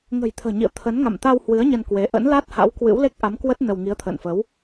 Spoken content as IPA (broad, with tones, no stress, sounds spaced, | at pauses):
ŋ ə̤˨˩ j t̪ʰ ə̤ː˨˩ ɲ ḭ˧˨ ə̯ t̪ʰ ə˨˦ n ŋ a̰˧˨ m t̪ a˧ w h w ɨ˨˦ ə̯ ɲ ə˧ n k w e˨˦ ʔ ə̰˧˥ n l a˦˥ t̚ h a̰˧˥ w k w ɨ̰˧˥ w l e˦˥ k̚ ʔ a˨˦ m k w ə˦˥ t̚ n ə˧ w ŋ i˨˦ ə̯ t̪ʰ ə̰ː˧˨ n f ə˨˦ w